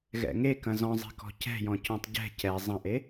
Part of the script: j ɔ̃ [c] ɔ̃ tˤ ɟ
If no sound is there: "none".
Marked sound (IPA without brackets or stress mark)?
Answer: c